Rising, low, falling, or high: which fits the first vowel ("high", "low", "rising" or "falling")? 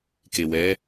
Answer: low